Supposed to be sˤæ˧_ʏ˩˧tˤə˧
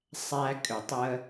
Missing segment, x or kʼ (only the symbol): kʼ